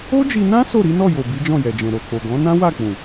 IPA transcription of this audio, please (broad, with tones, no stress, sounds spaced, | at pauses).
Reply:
o˦ d͡ʒ i˧ n ã˦ s o˦˨ ɾ i˨˦ n ɔ˦˨ j o˨ b i˨˦ d͡ʒ ɔ̃˦˨ j ɛ˨ d͡ʒ ɛ̃˨ ɾ o˨ k͡p o˨ ɡ ɔ̃˨˦ n ã˦ w a˦˨ k͡p ũ˨